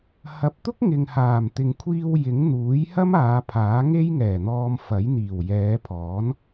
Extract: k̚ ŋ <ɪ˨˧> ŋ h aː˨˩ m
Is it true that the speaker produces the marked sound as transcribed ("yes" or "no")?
no